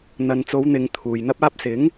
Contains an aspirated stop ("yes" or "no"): yes